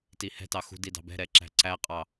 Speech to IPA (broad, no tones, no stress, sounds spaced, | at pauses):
t i h ɛ̤ t ɑ x ṳ d i d ɑ̤ b ɛ̤ ɾ ɛ ǁ æ̤ ǀ æ qʼ ɑ